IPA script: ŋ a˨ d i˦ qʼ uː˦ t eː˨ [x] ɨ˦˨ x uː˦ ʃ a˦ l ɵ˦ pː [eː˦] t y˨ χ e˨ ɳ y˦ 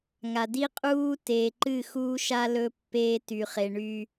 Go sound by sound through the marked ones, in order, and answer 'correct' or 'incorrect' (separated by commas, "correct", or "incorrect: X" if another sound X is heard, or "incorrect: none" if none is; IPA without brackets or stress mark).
incorrect: ǃ, correct